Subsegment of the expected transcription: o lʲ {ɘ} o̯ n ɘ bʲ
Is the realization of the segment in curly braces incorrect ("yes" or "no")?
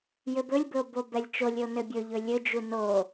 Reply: no